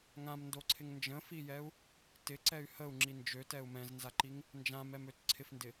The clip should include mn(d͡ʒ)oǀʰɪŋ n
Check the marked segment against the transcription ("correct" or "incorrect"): incorrect